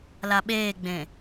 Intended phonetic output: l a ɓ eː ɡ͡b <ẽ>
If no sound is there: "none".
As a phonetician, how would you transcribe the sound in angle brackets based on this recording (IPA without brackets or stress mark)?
ẽ